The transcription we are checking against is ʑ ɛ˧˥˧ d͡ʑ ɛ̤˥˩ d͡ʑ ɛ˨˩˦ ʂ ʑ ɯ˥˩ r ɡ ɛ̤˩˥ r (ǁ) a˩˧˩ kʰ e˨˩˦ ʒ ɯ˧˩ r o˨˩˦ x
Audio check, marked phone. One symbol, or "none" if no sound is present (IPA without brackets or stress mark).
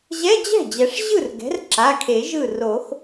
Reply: ǁ